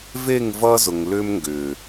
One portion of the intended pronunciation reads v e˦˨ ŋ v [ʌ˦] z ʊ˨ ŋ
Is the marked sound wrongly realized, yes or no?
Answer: no